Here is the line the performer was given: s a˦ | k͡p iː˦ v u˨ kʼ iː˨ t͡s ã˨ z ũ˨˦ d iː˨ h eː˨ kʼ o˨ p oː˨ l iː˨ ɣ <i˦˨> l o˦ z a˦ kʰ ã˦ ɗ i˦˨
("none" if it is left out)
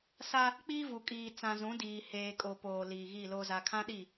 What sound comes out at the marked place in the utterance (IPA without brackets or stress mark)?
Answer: i˦˨